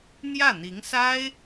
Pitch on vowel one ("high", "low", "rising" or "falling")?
falling